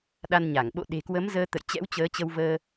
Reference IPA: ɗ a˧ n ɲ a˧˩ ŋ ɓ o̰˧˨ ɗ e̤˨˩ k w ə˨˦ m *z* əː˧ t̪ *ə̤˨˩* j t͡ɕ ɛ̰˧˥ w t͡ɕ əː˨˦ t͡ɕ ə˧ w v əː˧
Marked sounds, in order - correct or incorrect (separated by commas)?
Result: correct, incorrect